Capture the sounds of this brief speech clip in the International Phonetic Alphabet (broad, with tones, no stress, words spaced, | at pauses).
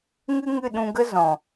ŋɨ˦ŋɨ˦˨ɗũ˧ɡə˦ zɔ̃˨